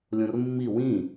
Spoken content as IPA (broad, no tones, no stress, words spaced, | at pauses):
lʲõrmːi wĩ